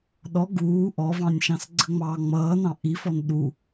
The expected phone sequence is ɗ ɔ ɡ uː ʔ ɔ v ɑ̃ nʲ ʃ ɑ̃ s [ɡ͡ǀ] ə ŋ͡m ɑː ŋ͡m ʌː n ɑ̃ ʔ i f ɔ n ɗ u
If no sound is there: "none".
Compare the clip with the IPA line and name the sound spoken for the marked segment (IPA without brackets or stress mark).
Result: ɡ͡ǀ